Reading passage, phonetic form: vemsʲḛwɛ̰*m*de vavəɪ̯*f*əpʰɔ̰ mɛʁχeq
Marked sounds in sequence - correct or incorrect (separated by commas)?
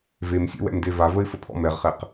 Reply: correct, correct